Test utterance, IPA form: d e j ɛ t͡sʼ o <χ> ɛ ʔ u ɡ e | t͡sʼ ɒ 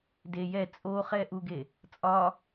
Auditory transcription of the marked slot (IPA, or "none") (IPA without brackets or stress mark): χ